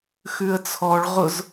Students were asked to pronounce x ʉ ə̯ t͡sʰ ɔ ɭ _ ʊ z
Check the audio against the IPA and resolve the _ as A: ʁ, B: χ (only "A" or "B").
A